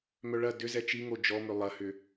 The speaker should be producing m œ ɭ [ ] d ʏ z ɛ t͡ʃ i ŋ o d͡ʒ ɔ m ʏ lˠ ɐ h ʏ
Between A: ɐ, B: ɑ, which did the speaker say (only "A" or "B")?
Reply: A